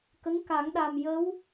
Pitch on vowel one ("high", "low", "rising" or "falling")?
rising